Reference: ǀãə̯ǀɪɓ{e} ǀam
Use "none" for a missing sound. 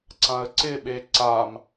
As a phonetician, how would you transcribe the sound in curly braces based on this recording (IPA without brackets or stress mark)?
e